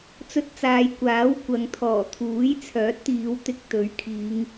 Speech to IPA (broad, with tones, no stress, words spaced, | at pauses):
t͡sɵ˧t̚t͡saː˨jkʷaː˨˥w kʷɐ˨˧ŋt̪ʰɔː˨˩t̪ʰuː˨˥j t͡sʰœː˨˥t̚t̪iː˨˧w t̪ɪ˧k̚t̪ɵ˨˥ɥkʰiː˨˧ŋ